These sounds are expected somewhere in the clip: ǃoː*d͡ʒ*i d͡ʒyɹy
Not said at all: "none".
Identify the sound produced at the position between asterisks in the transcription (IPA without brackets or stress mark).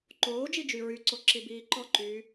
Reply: d͡ʒ